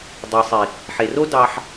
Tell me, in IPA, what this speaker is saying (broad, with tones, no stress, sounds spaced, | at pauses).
dˤ ɯ˨ sˤ i˨ | ħ e˨ r o˦ d ɑ˦ ħ